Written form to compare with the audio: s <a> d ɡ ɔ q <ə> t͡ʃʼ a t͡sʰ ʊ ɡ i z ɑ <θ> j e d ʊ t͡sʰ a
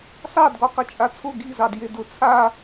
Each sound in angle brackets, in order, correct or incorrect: incorrect, correct, incorrect

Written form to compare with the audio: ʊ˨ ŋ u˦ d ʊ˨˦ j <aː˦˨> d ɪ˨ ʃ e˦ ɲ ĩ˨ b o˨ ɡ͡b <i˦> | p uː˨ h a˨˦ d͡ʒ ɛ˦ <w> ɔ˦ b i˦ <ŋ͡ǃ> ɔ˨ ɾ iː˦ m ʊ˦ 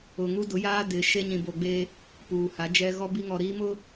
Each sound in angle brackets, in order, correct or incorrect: incorrect, incorrect, incorrect, incorrect

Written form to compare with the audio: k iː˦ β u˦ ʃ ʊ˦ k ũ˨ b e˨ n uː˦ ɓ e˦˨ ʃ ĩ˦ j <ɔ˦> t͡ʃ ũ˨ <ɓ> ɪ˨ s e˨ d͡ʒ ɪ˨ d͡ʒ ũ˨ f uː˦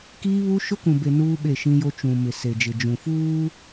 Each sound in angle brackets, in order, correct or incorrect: incorrect, incorrect

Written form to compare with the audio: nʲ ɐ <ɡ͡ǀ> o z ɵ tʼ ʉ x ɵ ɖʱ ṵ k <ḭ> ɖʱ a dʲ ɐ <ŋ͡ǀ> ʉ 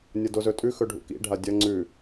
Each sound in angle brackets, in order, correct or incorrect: incorrect, correct, correct

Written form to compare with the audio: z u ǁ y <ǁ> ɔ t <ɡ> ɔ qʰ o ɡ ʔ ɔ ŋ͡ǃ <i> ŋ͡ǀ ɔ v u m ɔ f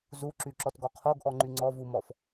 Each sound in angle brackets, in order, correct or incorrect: correct, correct, incorrect

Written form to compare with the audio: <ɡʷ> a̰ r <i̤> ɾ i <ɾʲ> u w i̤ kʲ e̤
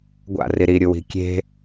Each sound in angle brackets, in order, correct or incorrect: correct, incorrect, correct

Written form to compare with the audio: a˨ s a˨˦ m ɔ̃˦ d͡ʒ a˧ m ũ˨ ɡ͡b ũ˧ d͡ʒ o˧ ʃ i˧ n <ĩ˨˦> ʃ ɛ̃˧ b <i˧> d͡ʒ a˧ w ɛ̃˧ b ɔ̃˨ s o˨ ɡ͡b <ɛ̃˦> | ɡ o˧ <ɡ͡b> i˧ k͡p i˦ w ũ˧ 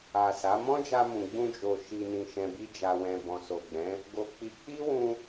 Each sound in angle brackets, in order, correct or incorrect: incorrect, incorrect, incorrect, incorrect

